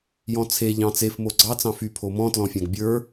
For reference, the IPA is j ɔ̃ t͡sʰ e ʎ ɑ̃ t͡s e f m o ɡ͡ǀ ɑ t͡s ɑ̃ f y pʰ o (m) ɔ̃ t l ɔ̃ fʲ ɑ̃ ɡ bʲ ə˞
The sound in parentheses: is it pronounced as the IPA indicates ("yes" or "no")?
yes